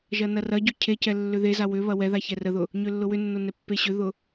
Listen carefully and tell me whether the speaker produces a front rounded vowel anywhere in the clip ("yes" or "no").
yes